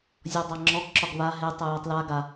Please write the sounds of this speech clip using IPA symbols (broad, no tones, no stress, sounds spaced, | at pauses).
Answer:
zʲ ɔ dˤ a ŋ͡ǁ ɔ ɡ ǁ ɒ ɡ β a ɦ e tˤ ə j ɛ tˤ l a ɡ a